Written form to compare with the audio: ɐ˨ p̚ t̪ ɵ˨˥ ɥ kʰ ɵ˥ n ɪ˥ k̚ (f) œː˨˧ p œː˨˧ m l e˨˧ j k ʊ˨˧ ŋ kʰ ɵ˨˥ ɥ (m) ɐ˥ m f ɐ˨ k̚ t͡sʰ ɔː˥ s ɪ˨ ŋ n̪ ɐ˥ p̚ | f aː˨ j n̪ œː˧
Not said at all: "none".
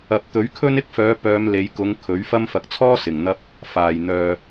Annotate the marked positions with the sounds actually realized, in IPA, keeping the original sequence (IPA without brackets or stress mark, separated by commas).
f, f